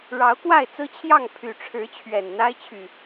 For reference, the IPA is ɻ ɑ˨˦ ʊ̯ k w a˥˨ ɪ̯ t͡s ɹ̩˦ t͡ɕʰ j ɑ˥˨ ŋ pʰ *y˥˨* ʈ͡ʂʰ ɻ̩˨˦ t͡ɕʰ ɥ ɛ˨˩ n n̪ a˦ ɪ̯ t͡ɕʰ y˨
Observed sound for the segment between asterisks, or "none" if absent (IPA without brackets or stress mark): y˨˩